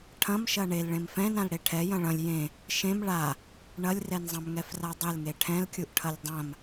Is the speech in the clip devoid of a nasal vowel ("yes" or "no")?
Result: no